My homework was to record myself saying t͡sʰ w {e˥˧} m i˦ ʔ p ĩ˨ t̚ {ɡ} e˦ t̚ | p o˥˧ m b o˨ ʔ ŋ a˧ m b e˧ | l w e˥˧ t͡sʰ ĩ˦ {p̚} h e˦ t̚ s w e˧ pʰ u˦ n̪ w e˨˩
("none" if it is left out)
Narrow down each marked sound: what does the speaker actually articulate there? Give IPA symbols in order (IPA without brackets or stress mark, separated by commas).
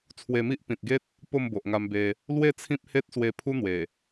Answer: e˧, ɡ, p̚